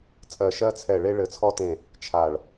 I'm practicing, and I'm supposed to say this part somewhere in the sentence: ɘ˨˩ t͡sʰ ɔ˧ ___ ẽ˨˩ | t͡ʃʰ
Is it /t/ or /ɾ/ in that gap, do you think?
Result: t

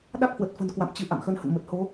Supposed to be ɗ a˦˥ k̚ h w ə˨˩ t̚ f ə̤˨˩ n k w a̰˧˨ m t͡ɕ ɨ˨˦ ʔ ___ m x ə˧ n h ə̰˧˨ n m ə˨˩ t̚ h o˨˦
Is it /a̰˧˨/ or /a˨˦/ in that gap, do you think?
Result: a̰˧˨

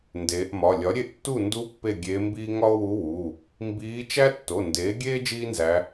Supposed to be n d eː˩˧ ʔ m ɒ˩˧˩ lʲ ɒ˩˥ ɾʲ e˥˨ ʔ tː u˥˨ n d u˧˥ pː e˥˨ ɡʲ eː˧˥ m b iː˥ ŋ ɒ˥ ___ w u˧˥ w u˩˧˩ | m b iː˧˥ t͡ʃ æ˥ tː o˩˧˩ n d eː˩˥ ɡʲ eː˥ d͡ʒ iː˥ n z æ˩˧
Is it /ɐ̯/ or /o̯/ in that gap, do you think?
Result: o̯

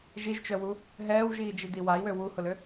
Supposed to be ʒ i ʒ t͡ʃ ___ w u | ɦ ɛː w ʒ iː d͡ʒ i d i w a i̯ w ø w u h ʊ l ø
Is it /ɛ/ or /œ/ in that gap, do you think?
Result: œ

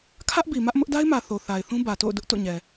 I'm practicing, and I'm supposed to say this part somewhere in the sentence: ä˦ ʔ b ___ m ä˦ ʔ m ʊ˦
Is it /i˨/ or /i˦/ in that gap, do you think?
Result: i˨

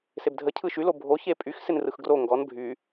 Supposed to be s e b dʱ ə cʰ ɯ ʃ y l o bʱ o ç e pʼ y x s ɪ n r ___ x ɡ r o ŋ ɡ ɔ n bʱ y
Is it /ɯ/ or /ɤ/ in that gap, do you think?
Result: ɯ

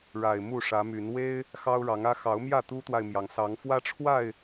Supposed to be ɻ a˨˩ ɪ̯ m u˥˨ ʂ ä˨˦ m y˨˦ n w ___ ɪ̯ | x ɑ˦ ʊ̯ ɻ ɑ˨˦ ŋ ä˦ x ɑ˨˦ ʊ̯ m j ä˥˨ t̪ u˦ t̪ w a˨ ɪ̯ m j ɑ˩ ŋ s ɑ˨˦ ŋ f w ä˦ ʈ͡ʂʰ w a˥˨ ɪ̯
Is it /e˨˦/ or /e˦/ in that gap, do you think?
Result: e˦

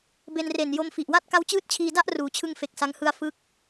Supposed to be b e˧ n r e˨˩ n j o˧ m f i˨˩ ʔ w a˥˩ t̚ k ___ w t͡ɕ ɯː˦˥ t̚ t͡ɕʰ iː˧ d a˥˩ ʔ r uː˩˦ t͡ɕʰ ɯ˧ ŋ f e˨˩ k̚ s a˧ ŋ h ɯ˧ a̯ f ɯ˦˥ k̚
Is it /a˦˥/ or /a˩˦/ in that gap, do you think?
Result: a˦˥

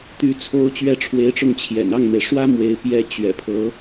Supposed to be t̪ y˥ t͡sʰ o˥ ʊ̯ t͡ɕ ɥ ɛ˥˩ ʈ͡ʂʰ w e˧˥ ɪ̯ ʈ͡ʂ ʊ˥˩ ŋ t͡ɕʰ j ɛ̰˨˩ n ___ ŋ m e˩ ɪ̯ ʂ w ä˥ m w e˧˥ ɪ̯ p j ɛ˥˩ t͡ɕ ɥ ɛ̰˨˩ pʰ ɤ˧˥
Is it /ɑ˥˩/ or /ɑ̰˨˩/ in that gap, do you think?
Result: ɑ˥˩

